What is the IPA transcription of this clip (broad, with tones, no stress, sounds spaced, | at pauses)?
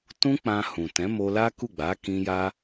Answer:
t ũ˦ k͡p ã˧ h ũ˨ t ɛ̃˨˦ m o˧ l a˦ k u˦˨ ɡ͡b a˨˦ k ĩ˧ j a˧